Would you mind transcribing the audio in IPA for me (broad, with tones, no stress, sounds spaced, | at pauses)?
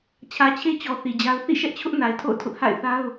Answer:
t͡ɕʰ ä˨ t͡ɕʰ e˦ t͡ɕ ɔ˨ θ i˨ d͡ʑ a˦ ʊ̯ θ ḭ˦˨ ʃ ɛ˦ ʔ t͡ɕʰ ʊ˦ ʔ n a˨ ɪ̯ tʰ o̰˦˨ ʊ̯ tʰ ʊ˦ ʔ h a̰˦˨ ɪ̯ θ a˦ ʊ̯